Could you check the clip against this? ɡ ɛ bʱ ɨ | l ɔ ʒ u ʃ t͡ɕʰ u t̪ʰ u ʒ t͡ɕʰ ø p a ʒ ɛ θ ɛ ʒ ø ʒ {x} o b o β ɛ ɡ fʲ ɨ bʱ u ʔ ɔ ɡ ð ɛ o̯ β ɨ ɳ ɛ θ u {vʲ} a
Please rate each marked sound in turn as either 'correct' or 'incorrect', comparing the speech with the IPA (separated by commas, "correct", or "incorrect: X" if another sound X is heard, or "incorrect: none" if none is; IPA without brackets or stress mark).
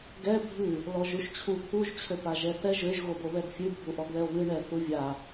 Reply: incorrect: ɣ, correct